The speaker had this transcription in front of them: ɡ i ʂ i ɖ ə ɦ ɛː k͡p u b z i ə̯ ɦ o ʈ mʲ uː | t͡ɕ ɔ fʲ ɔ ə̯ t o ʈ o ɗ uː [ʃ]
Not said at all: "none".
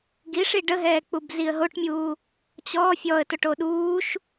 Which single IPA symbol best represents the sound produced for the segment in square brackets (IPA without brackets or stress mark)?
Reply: ʃ